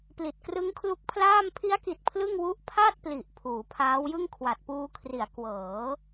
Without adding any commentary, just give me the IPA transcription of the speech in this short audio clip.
p l i˨˩ t̚ k r ɯ˦˥ ŋ kʰ l u˦˥ k̚ pʰ l aː˥˩ m pʰ i˦˥ a̯ k i˨˩ t̚ pʰ l ɯ˥˩ ŋ w u˥˩ ʔ pʰ a˥˩ t̚ p l i˨˩ ʔ pʰ uː˩˦ pʰ aː˦˥ w j ɯ˥˩ ŋ kʰ w a˨˩ t̚ p uː˧ kʰ r i˩˦ a̯ k w ɤː˩˦

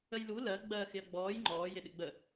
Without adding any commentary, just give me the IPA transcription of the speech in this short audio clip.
ə j l u l ɜ ɡ͡b ɜ x ɪ ɐ̯ ɡ͡b ɔː j ŋ͡ǃ ɔː j ɪ ɗ ɪ ɡ͡b ə

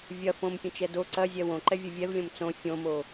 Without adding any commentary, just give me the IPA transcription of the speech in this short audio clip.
vʲ ɐ f õ m pʲ ə̃ t͡ʃ ɛ d o ǀ ɐ zʲ ɛ w õ ǃ ɛ vʲ ɐ vʲ ɛ v lʲ õ m t͡s õ fʲ õ m o

